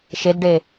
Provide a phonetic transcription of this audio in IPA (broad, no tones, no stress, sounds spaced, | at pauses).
ʃ e d ɖ e